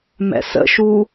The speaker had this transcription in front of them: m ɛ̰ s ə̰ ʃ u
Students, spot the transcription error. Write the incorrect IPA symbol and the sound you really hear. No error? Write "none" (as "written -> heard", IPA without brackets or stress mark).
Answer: none